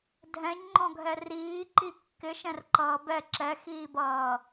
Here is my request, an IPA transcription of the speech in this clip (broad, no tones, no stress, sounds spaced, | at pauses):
dʱ ɛ̃ ɲ ŋ͡ǃ ɔ̃ ɡʱ ɛ r iː ǃ i kː ɪ ʃ ɛ̃ r ǃ ʌː b ɛ ǁ ɛ x iː b ʌː